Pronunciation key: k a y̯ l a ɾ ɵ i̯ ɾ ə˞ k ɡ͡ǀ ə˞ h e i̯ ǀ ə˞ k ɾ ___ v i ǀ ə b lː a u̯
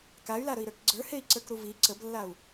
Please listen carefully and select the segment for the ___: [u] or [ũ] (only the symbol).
u